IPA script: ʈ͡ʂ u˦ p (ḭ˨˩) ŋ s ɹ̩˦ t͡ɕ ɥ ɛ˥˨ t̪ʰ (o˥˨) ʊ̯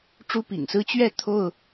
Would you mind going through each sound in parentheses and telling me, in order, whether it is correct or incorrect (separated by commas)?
correct, correct